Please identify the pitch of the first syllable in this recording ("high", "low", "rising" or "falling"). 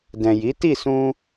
low